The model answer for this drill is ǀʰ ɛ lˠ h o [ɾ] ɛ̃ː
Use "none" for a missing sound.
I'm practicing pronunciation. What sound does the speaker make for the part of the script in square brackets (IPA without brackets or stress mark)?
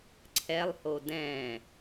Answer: d